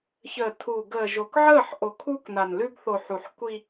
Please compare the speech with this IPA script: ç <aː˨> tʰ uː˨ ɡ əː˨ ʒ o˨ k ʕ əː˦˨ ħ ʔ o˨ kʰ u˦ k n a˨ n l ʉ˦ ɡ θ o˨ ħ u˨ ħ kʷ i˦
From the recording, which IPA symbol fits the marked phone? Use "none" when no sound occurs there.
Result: əː˨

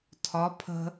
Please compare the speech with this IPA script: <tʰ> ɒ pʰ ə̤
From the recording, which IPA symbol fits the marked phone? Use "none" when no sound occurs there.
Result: tʰ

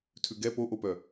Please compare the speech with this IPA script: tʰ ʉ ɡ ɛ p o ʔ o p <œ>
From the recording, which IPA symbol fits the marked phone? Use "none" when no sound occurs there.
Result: œ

